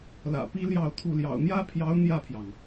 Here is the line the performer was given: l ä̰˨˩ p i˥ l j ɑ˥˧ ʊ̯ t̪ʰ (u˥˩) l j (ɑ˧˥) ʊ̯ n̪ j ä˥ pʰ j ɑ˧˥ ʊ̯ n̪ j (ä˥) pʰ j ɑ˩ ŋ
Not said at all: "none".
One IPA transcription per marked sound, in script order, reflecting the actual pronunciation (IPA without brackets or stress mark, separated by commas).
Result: u˥˩, ɑ̰˨˩, ä˥˩